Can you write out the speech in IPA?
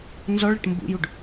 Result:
n z ɔ ɭ ə ʈ m b ṵ j u ɖ

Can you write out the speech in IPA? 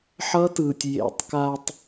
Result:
ħ ʌ˦ t ɯː˨ tʲ j ḛ˨ tˤ k a˨ tˤ

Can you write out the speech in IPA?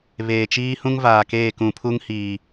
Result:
β eː˨ t͡ʃ iː˦ h ũ˦ ŋ v aː˨ k eː˦˨ k ũ˨ pʰ u˦ ŋ h iː˨

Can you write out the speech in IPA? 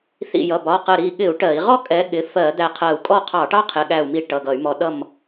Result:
θ ḭ˧˩ j ʌ˩˧˩ b ɒ˩˧˩ q ə˧˩ ɾ i˧˩ ɠ ɪ˧˩˧ u̯ ʈ ɜ˧˩˧ i̯ ʁ ɔ˥ kʼ ɛ˨˦ ɠ ɪ˩˧˩ f ɜ˧˩˧ d̪ æ˧˩ qʰ ɜ˧˩ u̯ kʼ ɔ˥˨ qʰ ɑ˧˩˧ ʈ ɑ˥ qʰ ɪ˩˧˩ ɠ æ˧˩ u̯ m i˧˩ ʈ ʌ˩˧˩ ɡ ʌ˧˩˧ y̯ m ɔ˨˦ ɗ ʌ˥˨ m

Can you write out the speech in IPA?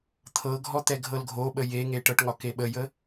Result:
t̪ʰ ɤ ɡʱ ɔ t̪ ɛ ɡʱ ɤ l ɡʱ o ɓ ə j e ŋ e ʈ ɤ ʈ ŋ ɒ k e ɓ ə j ə

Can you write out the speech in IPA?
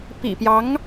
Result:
p ḭ˨˩ p j ɑ˧˥ ŋ

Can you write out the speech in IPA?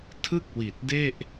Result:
tʰ ɯ˥˩ k̚ w i˨˩ t̚ d e˥˩ ʔ

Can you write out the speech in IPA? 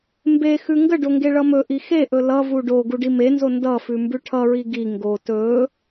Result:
m b e x ʉ ŋ ɡ ə ɖ o ŋ ɡ e ɭ ʌ m ɵ ʔ i x e ʔ ɵ l ʌ v u ɖ o ɡ u ɖ i m e n z o n d ʌ f ʉ m b ʉ ʈʰ ʌ ɹ i ɡ i ŋ ɡ o t ɵ

